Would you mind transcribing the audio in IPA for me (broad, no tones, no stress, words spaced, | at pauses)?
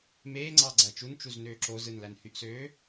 meː ŋ͡ǀɑɡ͡ǀæt͡ʃun t͡ʃuznøːǁo zɯnlænhyʔsøː